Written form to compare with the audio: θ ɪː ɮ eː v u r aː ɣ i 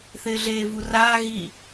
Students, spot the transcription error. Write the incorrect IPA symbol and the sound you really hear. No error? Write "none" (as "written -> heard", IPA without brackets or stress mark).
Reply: none